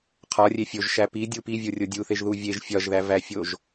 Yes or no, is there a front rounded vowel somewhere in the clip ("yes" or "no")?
no